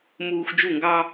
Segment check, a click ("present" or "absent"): absent